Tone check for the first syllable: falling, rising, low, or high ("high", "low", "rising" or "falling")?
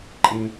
high